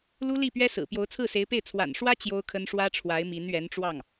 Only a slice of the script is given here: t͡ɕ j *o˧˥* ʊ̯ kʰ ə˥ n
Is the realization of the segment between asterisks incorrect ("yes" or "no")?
yes